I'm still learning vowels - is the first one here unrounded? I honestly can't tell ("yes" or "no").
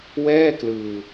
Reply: yes